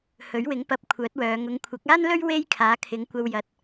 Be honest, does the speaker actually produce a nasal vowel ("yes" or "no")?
no